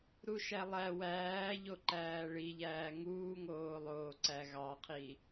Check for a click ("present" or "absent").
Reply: present